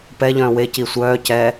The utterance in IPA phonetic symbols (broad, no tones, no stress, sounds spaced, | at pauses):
p ɛ ʎ œ̃ː w e c i sʷ œː c ɛ